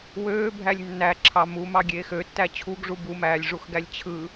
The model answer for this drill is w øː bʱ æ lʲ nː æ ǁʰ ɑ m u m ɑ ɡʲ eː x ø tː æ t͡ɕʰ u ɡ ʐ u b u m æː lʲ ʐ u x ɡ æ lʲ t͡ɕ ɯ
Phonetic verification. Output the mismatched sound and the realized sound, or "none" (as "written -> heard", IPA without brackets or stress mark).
t͡ɕ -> t͡ɕʰ